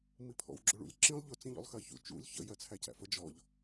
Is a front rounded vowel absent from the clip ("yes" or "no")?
yes